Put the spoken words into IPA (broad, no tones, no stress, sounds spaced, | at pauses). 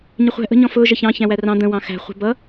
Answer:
ɲ ɪ χʷ æ̤ ʔ ə̤ ɲ ɔ̃ f ʊː ʒ ə ç ɑ̃ ç æ̃ w æ r ɑ̃ d̪ ə̃ w ɑ̃ x æ̤ χʷ ə̤ b ʌ